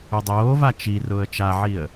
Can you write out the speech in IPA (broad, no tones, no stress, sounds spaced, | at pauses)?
ʊ dˤ oː v a t͡ʃ i r ʊː ə̯ t͡ʃ a ʕ i ə̯